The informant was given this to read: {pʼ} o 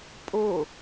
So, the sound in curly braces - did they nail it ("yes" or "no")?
yes